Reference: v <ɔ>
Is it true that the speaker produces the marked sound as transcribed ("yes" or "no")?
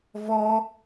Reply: yes